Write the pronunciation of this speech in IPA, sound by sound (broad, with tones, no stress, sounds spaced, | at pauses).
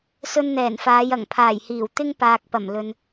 s ɵ˧ n n̪ ɛː˨˩ n f aː˨˧ j ɐ˨˩ ŋ pʰ aː˨˩ j h iː˨˩ w t̪ ɪ˥ ŋ p aː˨ k̚ p ɐ˨˩ m l ɵ˧ n